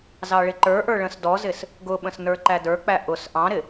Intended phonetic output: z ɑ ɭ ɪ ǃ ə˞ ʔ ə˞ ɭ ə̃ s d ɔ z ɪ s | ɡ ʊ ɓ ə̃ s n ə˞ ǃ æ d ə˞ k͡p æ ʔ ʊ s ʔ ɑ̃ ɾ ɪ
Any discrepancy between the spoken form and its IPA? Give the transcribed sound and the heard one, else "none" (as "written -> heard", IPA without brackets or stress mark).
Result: none